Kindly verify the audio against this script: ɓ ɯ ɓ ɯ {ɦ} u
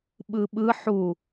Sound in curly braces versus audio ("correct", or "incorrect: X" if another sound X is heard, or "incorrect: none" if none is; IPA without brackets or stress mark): incorrect: ħ